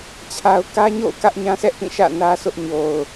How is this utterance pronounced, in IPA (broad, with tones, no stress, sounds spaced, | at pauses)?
t͡ɕʰ a˦ ʊ̯ k ä˦ ɲ o̰˦˨ ʊ̯ k ä˦ ʔ ɲ ã˦ s ɛ˦ ʔ p ĩ˦˨ ʃ ä̰˦˨ n ä˦ sʰ ʊ˦ ʔ ɲ o˨ ʊ̯